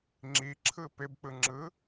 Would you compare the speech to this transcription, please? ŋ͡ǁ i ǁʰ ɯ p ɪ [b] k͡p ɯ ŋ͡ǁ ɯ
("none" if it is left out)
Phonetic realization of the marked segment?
b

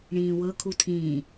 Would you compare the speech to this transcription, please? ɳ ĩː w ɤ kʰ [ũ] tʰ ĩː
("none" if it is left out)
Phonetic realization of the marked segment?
u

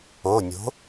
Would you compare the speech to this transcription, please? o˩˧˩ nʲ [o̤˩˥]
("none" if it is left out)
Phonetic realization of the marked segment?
o̤˩˥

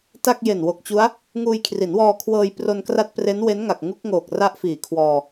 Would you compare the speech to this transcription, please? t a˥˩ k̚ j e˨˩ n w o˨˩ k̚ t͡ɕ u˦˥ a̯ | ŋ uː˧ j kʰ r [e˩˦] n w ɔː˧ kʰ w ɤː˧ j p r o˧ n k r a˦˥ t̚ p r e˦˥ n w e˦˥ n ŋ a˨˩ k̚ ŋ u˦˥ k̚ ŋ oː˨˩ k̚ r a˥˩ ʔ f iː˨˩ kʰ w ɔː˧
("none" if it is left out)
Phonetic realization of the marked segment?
i˩˦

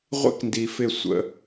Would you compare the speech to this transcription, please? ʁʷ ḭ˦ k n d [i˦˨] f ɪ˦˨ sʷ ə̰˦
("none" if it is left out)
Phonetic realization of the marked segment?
i˨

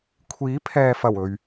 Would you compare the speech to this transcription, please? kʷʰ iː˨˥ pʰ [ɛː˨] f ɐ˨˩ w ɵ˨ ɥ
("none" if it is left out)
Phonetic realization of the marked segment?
ɛː˨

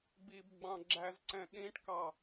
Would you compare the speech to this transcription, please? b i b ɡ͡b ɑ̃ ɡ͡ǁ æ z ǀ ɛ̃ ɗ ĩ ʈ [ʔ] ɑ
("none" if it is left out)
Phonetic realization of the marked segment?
k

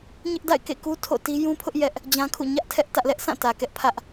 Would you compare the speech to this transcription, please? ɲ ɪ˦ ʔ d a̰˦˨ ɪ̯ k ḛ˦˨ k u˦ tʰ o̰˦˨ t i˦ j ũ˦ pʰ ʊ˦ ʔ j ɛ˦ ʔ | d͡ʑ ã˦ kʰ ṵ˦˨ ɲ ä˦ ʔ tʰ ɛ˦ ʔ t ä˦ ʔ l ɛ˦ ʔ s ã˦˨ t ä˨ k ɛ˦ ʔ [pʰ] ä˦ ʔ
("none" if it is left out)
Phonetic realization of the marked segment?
pʰ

